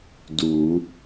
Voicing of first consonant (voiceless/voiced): voiced